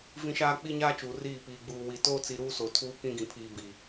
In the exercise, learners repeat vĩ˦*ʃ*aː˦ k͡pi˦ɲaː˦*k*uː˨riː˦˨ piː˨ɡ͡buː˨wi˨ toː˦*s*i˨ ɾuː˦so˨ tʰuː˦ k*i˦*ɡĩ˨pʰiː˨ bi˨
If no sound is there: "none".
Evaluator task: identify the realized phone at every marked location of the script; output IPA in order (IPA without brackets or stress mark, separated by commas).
ʃ, t͡ʃ, t͡s, ĩ˦